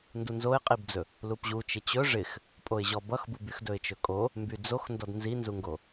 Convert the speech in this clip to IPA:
ndunzoɪ̯qʼibd͡zɵ | lupʑu t͡ʃɪt͡ɕɵ ʐɪx | pʼoɪ̯ʑɔbʌxbu byxdɵɪ̯t͡ʃɵkʼo | mbyd͡zoxndɔd nzinzuŋɡo

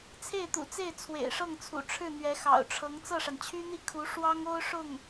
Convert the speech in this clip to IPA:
t͡sʰe˥˩ɪ̯t̪ṵ˨˩t͡se˥˩ɪ̯ t͡sʰwḛ˨˩ɪ̯ʂɤ˥˩ŋt͡sʰṵ˨˩ʈ͡ʂʰɻ̩˥˩ n̪ɥɛ˧˥xɑ̰˨˩ʊ̯ʈ͡ʂʰɤ˧˥ŋ t͡sɤ˥˩ʂa˩nt͡ɕʰy˥n̪i˥ kʰu˧˥ ʂwɑ˥ŋo˥ʊ̯ ʂʊ˥˩ŋ

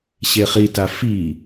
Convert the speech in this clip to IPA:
ɕeχita fi

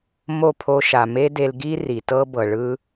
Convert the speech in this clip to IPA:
mo˦˨pʰo˧ʃa˨ me˦de˧lɡi˦ri˨ tɤ˧bɤ˨ ɭɯ˧

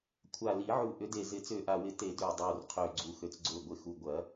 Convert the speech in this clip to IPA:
kʷʰa˨˩li˨˩˦ʕu˨˩ ʔʏ˨˩˦de˨˩zɪ˨˩˦ t͡sʏː˨˩ʔa˨˩wɪ˨˩˦ te˨˩˦dʏː˨˩ dˤuː˨˩rqʰʏː˨˩ɡ͡ǀu˨˩xø˨˩t͡s ɡ͡ǀʊː˨˩ɡʷɪ˨˩ xu˨˩ɡʷɐ˨˩˦

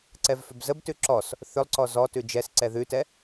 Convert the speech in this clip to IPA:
ǀɛvfʏbzəbtʉ ǁɔs | θʏlˠǀɔ zɔtʉ d͡ʒɛs ǀɛðʉtɛ

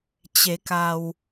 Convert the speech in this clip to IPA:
t͡ɕe˩˧ka˩w

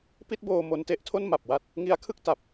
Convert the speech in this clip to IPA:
pi˥˩t̚boː˧ mo˧nte˥˩ʔtʰo˥˩n ma˨˩p̚wa˥˩t̚ | ŋi˦˥a̯kʰɯ˥˩k̚ta˨˩p̚

